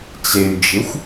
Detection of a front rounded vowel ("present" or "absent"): present